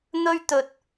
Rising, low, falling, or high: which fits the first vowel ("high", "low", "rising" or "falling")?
high